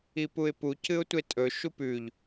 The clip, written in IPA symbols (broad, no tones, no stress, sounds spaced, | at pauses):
i p u ɪ̯ p u c ɨ ʊ̯ tʷ e tʼ ɵ ʃ u p ʉ ʎ